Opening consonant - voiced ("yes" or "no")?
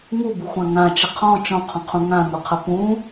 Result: yes